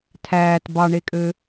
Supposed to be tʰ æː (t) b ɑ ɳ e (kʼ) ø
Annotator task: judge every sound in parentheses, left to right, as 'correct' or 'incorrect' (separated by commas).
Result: correct, correct